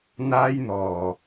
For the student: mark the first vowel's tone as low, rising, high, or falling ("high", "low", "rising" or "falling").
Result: high